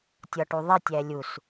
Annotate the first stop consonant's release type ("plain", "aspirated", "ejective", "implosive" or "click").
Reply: plain